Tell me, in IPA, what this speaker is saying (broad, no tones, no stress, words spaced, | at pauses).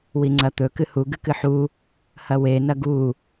wiŋ͡ǀɐt̪ɵ kɨhu ɡɨkɨħu | hɐwe nɐɡu